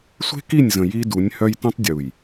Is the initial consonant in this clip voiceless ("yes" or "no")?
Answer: yes